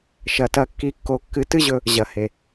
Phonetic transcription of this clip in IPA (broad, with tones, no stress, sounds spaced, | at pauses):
ʃ ɐ˨ t ɐ˧ kː i˧ kː o˧ kː ɨ˨˦ t ɨ˦ ʑ ɵ˧ | ʑ ɐ˨ h e˨